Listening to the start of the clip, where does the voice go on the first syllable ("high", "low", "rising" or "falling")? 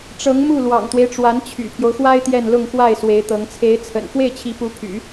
rising